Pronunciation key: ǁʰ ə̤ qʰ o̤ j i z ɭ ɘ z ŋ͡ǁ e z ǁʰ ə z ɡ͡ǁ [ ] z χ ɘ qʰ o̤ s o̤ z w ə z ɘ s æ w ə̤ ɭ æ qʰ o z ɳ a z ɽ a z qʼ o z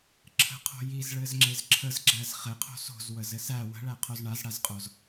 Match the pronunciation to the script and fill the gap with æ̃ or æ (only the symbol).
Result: æ